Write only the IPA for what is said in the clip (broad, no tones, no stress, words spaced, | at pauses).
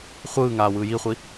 χʷɯːŋaː wɯːjiχʷi